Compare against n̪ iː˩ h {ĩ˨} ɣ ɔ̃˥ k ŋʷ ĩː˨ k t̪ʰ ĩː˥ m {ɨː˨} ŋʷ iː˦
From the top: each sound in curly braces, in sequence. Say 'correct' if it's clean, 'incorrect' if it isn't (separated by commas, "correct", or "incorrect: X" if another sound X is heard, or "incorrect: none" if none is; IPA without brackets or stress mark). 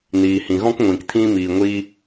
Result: incorrect: ĩ˩, incorrect: iː˨